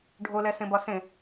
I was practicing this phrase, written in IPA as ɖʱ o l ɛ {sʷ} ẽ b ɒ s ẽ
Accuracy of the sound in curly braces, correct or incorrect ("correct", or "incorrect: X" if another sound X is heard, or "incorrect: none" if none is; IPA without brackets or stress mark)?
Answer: incorrect: s